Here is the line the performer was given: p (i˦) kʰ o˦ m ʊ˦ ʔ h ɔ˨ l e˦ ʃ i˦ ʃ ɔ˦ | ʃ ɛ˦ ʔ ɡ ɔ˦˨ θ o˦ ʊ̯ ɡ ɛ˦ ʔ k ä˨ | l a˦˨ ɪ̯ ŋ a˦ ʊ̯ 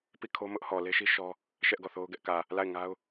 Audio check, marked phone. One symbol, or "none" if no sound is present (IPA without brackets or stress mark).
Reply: i˦˨